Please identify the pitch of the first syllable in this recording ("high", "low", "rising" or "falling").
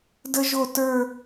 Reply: high